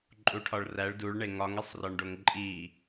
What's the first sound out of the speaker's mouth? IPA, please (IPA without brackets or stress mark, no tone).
ǃʼ